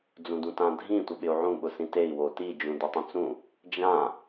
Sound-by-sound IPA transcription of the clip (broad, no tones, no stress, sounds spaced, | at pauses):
d͡z ũ d ũ t ã dʱ ĩ tʷ ɪ ɓ ɪ u̯ ʕ ũ ɓ ʊ s ĩ t e i̯ w o t i d͡ʒ ũ d i tˤ ũ t͡s ũ | d͡ʒ ã